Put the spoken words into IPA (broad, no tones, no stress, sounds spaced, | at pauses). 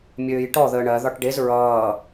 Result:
mʲ øː j ʈ ɔ ð əː ɳ ɜ ð ɒ ʈ ɖ e z ɹ ʌː